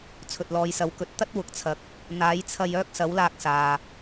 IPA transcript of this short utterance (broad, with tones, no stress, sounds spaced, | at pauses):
t͡sʰ ɵ˨ t̚ l ɔː˨˧ j s ɐ˨˥ w k ɵ˨ t̚ t̪ ɐ˥ t̚ w ʊ˨ k̚ t͡sʰ ɐ˨ k̚ | n̪ aː˨˥ j t͡sʰ ɐ˧ j œː˥ k̚ s ɐ˨˥ w l aː˧ k̚ s aː˨